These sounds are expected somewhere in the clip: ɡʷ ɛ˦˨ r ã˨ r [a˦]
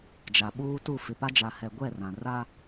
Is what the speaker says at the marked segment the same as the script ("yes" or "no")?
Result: yes